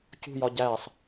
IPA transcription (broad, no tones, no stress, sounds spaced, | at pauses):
c ṳ j ɒ ɟ æ sˤ